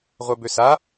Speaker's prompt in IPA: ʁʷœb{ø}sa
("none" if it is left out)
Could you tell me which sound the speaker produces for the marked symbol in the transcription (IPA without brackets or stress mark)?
ø